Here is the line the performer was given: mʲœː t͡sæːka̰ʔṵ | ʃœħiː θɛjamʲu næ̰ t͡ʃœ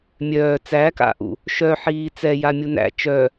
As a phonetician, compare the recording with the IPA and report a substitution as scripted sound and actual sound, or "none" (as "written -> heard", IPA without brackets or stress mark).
θ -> t͡s